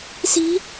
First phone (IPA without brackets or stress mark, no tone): s